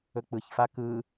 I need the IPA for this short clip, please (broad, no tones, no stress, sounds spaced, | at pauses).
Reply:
ɵ k͡p ɯ ç f a k ɯ